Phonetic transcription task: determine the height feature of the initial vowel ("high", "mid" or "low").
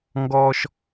mid